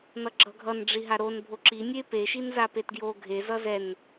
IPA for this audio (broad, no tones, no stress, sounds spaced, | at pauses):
n ʌ ɡ͡ǁ ʌ ɡʱ ʌ n ɖ͡ʐ i ɦ a ɾ o n bʱ o ǁ i nʲ e p e ʃ i n z a p e t ɡ j o ɡʱ e z ʌ z ɛ n